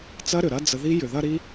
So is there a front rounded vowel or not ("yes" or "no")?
yes